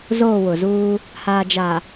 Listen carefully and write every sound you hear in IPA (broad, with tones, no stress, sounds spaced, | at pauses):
z oː˦˨ w ʊ˨ z uː˦ | h aː˨ d͡ʒ a˨